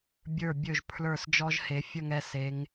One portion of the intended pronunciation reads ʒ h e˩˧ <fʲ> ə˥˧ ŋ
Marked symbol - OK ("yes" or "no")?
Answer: yes